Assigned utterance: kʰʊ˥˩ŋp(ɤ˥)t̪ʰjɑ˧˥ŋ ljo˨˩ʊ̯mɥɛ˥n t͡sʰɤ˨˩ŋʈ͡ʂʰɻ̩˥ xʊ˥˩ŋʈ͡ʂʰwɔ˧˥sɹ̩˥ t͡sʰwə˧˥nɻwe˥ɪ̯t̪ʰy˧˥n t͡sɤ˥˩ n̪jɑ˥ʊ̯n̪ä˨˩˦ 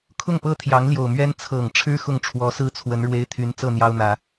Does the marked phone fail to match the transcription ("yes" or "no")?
no